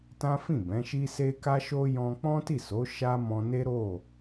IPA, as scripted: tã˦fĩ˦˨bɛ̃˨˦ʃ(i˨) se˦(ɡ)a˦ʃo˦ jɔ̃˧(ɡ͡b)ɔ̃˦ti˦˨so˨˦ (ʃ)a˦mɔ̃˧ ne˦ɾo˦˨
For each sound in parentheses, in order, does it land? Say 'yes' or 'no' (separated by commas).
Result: no, no, no, yes